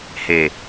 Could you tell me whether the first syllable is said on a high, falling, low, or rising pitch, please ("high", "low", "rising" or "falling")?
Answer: low